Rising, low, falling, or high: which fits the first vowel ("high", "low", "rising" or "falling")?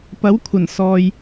rising